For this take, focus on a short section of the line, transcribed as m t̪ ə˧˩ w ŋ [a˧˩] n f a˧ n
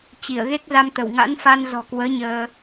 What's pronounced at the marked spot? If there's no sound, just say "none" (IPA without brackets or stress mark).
a̰˧˥